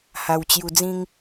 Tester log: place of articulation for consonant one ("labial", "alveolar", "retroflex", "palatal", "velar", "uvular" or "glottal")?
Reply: glottal